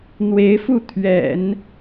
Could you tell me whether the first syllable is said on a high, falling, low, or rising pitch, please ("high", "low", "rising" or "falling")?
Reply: rising